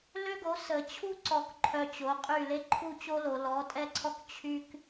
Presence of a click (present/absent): present